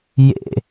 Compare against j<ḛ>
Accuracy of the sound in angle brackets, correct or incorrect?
correct